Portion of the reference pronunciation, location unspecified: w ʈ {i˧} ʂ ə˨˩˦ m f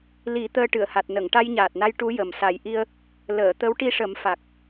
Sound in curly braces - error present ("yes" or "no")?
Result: no